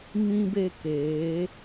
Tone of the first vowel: high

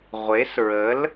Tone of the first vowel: rising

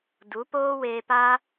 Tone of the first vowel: rising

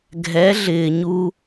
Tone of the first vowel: rising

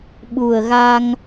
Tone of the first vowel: low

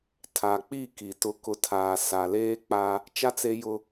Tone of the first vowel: low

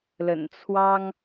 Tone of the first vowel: low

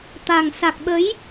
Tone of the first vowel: low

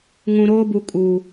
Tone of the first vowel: low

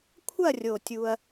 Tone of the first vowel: falling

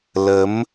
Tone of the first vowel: rising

